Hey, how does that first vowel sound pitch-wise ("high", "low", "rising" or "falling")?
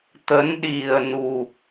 rising